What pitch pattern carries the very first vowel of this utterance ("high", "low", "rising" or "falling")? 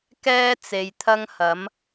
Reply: high